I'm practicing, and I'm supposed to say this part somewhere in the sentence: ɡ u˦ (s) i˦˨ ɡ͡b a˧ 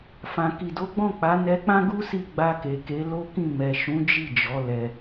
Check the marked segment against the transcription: correct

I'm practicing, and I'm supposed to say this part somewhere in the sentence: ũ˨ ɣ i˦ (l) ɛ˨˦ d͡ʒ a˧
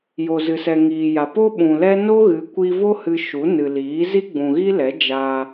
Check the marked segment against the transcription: correct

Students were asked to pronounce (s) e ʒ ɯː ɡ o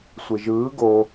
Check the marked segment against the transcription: incorrect: sʷ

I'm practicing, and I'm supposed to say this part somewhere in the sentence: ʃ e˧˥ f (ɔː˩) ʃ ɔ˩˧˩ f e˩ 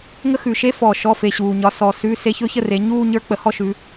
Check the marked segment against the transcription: correct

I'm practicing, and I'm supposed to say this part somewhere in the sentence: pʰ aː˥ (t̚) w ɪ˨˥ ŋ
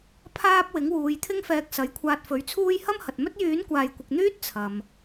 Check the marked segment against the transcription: incorrect: p̚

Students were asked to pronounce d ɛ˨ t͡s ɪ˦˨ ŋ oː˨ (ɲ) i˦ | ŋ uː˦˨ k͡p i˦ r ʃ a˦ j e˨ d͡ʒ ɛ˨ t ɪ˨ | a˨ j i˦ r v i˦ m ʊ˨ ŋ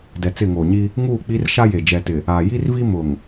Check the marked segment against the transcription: correct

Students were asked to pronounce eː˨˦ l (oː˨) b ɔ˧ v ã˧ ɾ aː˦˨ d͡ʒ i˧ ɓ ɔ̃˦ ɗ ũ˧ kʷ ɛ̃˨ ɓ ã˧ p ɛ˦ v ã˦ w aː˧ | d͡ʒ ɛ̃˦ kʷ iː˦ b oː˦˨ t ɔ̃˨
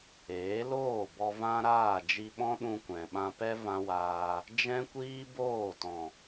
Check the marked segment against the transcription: incorrect: oː˦˨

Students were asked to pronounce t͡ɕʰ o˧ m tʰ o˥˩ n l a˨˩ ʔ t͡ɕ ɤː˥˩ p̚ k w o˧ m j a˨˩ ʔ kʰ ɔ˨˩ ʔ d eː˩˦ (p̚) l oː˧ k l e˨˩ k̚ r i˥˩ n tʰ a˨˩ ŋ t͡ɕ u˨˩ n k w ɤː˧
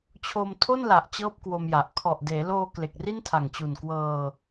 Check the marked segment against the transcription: incorrect: none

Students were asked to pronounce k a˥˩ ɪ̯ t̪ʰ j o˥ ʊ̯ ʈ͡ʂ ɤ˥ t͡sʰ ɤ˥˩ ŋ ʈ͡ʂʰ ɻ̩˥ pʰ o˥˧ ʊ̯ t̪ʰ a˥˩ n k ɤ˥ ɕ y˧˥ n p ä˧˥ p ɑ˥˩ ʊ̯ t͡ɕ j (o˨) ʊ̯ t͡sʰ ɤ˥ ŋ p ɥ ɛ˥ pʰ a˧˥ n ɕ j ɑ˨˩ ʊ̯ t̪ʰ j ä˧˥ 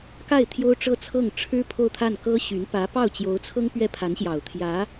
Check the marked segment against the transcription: incorrect: o˧˥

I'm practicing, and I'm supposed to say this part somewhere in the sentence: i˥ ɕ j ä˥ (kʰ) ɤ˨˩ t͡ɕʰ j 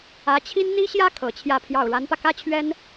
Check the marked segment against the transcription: correct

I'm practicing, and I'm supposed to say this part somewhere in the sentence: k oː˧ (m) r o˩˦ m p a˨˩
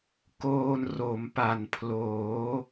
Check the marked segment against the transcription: incorrect: n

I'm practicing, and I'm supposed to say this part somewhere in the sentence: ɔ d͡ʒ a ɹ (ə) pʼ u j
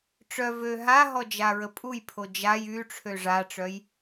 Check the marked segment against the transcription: correct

